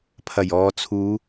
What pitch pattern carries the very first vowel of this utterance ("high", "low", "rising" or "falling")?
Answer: low